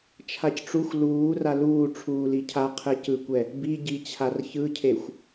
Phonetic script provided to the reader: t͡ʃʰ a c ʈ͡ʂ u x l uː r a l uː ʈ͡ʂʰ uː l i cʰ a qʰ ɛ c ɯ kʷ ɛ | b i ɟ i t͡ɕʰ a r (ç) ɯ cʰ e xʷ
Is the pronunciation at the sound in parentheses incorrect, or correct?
correct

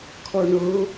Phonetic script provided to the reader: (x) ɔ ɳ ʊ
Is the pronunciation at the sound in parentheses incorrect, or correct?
incorrect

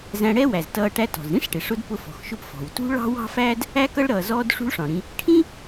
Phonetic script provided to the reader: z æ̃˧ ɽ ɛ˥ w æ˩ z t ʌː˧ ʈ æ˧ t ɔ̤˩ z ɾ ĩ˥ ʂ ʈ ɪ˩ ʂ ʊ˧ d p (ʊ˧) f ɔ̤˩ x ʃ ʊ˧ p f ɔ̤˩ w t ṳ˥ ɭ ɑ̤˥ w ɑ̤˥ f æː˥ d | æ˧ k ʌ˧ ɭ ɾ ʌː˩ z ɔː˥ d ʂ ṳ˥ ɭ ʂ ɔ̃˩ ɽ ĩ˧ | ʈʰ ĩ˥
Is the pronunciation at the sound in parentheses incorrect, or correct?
correct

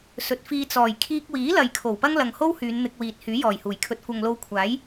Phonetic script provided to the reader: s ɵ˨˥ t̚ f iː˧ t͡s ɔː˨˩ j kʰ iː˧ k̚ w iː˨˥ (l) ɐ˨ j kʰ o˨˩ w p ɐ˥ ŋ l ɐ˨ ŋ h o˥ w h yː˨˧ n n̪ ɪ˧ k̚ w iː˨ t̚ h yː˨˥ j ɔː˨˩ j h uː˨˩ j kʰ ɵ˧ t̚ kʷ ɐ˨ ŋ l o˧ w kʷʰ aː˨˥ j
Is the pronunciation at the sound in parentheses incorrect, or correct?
correct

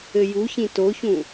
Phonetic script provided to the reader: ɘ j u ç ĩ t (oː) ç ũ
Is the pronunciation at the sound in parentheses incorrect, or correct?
incorrect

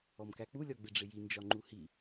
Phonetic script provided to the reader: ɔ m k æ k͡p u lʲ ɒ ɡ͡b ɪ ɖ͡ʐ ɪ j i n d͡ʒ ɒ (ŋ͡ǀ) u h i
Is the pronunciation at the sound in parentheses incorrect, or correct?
incorrect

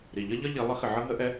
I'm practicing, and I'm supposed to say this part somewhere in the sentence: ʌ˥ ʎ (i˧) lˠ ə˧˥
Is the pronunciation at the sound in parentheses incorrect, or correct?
incorrect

